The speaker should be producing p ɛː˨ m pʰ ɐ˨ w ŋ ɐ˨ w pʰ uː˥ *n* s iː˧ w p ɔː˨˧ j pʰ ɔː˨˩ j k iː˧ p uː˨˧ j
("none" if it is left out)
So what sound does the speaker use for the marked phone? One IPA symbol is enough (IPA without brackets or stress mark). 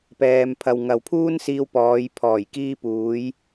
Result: n